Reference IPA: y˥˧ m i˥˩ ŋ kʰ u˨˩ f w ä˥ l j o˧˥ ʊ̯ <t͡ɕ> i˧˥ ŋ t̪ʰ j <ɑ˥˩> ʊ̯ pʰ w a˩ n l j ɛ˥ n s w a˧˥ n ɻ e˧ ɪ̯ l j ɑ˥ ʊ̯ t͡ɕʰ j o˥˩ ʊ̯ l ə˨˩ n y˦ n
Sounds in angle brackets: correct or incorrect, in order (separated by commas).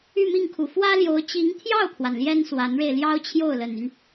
correct, correct